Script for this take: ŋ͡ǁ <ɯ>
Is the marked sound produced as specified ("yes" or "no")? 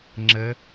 no